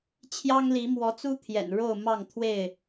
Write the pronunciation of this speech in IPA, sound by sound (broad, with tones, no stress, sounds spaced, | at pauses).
t͡ɕʰ j ɑ˦ ŋ l i˨˦ m w ɔ˨˦ t͡s u˦ t̪ʰ j ɛ̰˨˩ n ɻ o˥˨ ʊ̯ m ɑ˥˨ ŋ t̪ʰ w e˥˨ ɪ̯